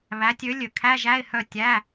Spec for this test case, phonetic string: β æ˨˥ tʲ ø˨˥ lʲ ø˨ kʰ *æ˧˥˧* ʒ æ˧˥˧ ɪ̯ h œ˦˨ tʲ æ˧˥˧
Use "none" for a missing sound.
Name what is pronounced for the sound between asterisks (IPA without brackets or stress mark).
æ˧˥˧